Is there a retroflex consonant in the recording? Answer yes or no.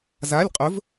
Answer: no